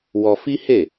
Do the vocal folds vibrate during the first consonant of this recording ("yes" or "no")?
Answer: yes